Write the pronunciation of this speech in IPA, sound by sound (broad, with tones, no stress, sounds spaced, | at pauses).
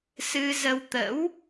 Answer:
s ɨ˧ z ə˧ w t̪ ə̰˧˥ w